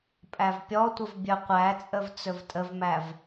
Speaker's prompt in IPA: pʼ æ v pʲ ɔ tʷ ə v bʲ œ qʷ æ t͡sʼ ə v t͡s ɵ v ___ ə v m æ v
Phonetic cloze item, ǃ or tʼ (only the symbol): tʼ